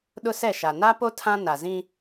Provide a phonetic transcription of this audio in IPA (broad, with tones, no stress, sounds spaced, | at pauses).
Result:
ɗ ʊ˦ s ɛ˦˨ ʃ a˨ n a˦ p o˦ tʰ ã˦ n a˨ z ĩ˦